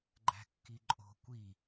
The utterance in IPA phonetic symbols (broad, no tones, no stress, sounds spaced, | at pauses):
ɡ͡ǃ æ̤ kː i ǃʼ o̤ kʷ i